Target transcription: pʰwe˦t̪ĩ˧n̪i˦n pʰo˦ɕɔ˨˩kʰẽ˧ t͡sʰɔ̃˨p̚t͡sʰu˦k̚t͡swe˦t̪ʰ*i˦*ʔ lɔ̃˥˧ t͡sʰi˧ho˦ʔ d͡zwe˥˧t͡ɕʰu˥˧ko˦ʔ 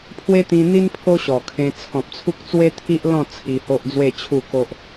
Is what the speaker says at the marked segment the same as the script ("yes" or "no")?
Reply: yes